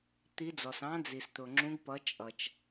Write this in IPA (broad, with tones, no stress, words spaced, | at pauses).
t̪i˨˦d͡zɔ˩s ɑ̃˨˦d͡zi˩st̪ʊ˩ ŋ͡ǁũ˨˦ɡpʌ˨˦ t͡ʃʼʌ˩t͡ʃ